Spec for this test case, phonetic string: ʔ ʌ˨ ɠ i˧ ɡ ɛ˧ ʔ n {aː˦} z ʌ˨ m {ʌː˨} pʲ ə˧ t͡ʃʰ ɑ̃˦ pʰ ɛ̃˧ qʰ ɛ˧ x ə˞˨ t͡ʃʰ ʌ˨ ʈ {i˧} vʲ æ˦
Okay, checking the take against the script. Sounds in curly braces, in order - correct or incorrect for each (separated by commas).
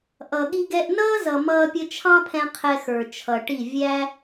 incorrect, incorrect, incorrect